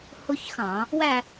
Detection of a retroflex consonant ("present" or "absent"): absent